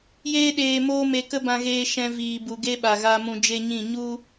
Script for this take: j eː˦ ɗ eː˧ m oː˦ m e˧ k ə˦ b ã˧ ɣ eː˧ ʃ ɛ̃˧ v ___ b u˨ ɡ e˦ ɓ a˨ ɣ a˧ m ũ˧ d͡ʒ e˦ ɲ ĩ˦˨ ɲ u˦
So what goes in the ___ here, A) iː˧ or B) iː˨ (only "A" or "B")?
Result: B